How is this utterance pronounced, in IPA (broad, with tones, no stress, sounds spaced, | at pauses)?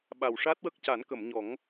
ɓ a˨˩ w ʂ a˦˥ t̚ w ə˦˥ k̚ c a˨˩˦ n k ə˨˩˨ m ɲ ɔ˨˩˦ ŋ